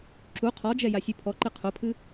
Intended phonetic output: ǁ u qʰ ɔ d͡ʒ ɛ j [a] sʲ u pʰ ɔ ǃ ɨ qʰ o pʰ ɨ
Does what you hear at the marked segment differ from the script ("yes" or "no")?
no